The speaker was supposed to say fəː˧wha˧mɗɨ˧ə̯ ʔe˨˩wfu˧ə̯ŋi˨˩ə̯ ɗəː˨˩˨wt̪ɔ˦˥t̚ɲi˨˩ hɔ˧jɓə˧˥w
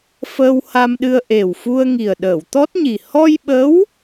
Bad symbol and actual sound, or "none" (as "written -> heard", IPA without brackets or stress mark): none